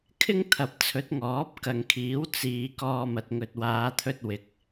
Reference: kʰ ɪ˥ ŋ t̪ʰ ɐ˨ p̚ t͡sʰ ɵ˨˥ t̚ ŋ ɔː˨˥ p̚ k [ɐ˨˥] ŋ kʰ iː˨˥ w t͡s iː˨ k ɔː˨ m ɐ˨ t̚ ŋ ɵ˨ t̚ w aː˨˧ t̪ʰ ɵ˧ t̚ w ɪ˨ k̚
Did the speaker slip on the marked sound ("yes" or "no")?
yes